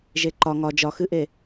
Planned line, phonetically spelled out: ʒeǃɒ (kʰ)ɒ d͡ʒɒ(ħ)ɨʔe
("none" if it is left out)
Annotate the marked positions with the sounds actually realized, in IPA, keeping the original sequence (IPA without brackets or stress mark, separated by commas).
ŋ, x